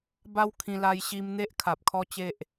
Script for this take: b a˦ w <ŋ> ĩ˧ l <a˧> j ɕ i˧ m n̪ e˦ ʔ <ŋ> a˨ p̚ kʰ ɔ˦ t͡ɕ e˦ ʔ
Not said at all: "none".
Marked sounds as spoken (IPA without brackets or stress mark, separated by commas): kʰ, a˧, kʰ